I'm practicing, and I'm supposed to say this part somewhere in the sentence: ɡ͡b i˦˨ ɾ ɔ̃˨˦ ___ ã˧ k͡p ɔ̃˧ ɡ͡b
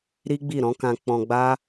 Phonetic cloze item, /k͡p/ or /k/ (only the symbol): k